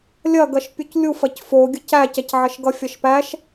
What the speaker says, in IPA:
lʲ ɐ ɡ ɐ ʃ pʲ u c lʲ u f ɐ c f o ɡʲ ə c æ c ɐ c ʕ ɐ ʃ ɡ ʌ fʲ ʌ ʃ p æ ʃ

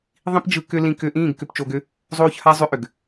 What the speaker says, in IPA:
ðˤ ĩ˦ p d͡ʒ ɯ˧ k ʏ˦ l ĩ˧ k ʏː˧ ʔ ĩː˦˨ ɡ k ʏ˧ p t͡ʃ o˧ ɡ ʏ˦ | zˤ oː˦ ç h a˦ zˤ ʏ˦ ʔ ʏ˨ ɡ

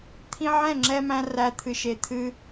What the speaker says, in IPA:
t̪ʰ ĩ˧ ʕ ɛ̃˦˨ ŋ͡ǁ ɛ˧ m æ̃˧ r æ˨ t̪ʰ ɨ˨ ʃ e˨ t̪ʰ ɨ˧

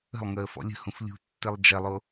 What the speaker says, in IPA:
ə̤ lˠ ŋ əː f ɔ̰ lʲ ə̤ h ũ f lʲ ṳ tː ɘ lˠ d͡ʒ ɐ lˠ o

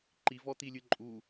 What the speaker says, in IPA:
ǃ i v ɔ t̪ i lʲ ɨ ǃʼ u

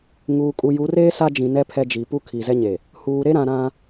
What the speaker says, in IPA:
ŋ uː˨ kʼ u˨ j u˨˦ r eː˦ s a˦ d͡ʒ ĩ˨ n ɛ˦ pʰ ɛ˦ d͡ʒ i˨ p u˦ kʰ i˨ z ɛ˦ ɲ e˨ | h uː˨ ɾ e˦ ɾ ã˨ ɾ ã˦

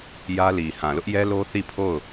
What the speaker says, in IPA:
j ä˦ l i˨ h ã˨ l ʊ˦ ʔ j ɛ˦ l o˦ θ i˦˨ pʰ o˦˨ ʊ̯

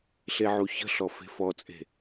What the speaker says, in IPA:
ɬ e ʕ u ç ə̤ ɬ ɔ f e̤ f ɔ t͡sʼ e̤

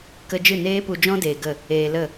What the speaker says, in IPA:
k ə˧ d͡ʒ ɨ˦˨ n eː˦ p u˧ d͡ʒ ɔ̃˦ d eː˧ ɡ ə˦˨ | eː˧ l ə˦˨

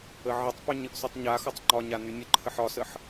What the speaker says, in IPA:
ə ʕ ə tˤ p y ɲ ə ʔ s y tˤ ɲ a x ɒ tˤ ŋ͡ǃ ɒ ɲ a n y nʲ ə ǃʰ ə ħ ɒ s ə ħ

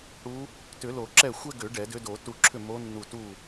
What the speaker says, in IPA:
ɽ u˧˥ | t ʏ˨˩˦ l o˨˩˦ ǁ ɛ˥˨ xʷ ɛ˥ ɡ ʏ˨˩˦ ɖ ɛ˨˩˦ d ʏ˧˥ d o˨˩˦ t u˧˩ ǁʰ ʏ˥˨ m o˧˥ nː u˧˩ t u˥˨

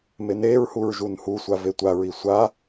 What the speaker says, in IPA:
m e n e ɹ h u ɹ ʒ u n h u sʷ a v e tʷ a ɹ i sʷ a

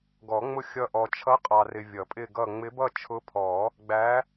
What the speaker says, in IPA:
ɡ ɔ˨˩˦ ŋ͡m ʊ˥˧ xʲ ʌ˥˧ ʔ ɔ˨ t͡ʃʰ ʌ˧˥ qʼ ɑ˨ r ɪ˨ vʲ ʌ˨˩˦ pʼ ɪ˥˧ ɡ ʌ˥˧ ŋ͡m ɪ˧˥ b ʌ˥˧ t͡ʃʰ ʊ˧˥ pʰ ɔ˨˩˦ | ɡ͡b æ˧˥

